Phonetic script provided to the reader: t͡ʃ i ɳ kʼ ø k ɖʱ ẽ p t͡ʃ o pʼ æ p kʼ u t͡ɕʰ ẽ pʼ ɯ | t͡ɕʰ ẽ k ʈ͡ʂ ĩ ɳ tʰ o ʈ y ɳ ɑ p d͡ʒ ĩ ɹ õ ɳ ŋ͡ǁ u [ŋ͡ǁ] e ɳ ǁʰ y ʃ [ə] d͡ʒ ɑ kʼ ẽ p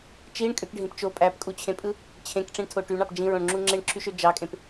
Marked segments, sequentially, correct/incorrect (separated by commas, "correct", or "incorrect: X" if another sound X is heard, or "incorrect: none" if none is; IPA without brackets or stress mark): correct, incorrect: ø